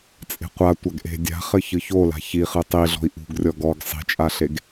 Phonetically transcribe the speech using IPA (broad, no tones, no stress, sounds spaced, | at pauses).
t͡sʼ e̤ qʷ a tʷ a ɡ ʔ e̤ dʲ a̤ χ ɘ ç ɨ ç o l a̤ ç i χ ɨ tˤ i ɮ ɔ̤ i̯ ʔ ṳ ɡ rʲ ɔ ɡ ɔ ɡ sˤ i̤ t͡ʃʼ a ɬ e ɡ